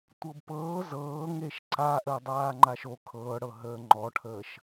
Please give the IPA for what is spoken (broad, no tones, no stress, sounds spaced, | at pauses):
tʷ ɤ b p ɤː z ɤː ŋ e ʃ ǀ a ʔ əː dˤ aː ŋ͡ǃ a ʃ o kʰ ɤː ɽ ɤ ɦ əː ŋ͡ǃ ɔ ʈʰ əː ʃ